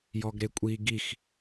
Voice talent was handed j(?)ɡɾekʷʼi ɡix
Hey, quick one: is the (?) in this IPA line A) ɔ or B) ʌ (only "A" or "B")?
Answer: A